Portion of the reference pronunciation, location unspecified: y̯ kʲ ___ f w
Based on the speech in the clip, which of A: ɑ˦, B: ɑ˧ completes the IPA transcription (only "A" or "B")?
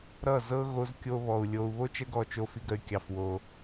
B